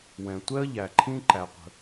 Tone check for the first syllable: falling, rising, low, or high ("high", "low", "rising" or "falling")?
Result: low